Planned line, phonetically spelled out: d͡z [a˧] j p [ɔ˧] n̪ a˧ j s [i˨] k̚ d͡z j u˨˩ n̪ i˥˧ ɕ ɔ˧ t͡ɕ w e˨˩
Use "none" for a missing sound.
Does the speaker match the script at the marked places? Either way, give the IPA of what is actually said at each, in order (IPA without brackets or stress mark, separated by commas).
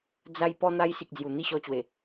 a˧, ɔ˧, i˨